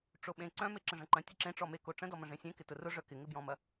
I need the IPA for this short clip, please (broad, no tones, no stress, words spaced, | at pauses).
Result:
ʈ͡ʂoɓẽ ǀœ̃me ǁə̃ʐɐ̃ǃɐ̃tʲə ǁẽ ʈ͡ʂɔme koʈ͡ʂə̃dɔmə̃ ʐẽsʲẽkɪ tʊrʊʐœ kɪŋɪbjɔ̃mɐ